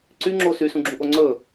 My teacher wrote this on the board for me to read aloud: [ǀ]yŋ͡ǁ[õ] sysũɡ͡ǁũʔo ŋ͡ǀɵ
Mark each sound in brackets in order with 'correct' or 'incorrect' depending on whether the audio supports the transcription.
correct, incorrect

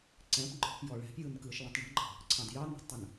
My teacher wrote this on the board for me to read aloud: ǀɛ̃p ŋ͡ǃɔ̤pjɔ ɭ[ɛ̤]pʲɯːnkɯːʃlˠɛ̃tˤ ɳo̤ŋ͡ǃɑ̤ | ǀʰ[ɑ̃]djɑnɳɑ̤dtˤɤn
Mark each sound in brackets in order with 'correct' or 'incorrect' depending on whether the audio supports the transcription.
correct, correct

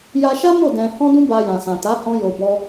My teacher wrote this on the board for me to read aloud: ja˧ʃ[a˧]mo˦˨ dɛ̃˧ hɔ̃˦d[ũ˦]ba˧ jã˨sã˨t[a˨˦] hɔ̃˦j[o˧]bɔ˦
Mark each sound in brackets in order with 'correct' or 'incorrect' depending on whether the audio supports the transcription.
incorrect, correct, correct, correct

